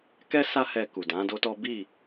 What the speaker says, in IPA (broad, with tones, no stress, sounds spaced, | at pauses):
k ɛ˦ s a˦ h ɛ˧ k u˨ d ã˨˦ d o˦ t ɔ˦ b i˦˨